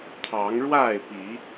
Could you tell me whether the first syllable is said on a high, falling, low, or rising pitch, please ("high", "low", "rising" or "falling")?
rising